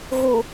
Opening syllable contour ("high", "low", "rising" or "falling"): low